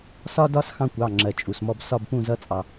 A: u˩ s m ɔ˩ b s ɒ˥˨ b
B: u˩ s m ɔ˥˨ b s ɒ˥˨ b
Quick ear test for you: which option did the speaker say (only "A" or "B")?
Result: B